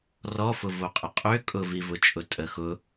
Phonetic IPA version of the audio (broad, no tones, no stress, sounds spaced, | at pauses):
r ɔ f ʊ v o qʼ ə qʼ ø kʼ ʊ v i v ʊ t͡ʃʼ ʊ tʼ ə x ʊ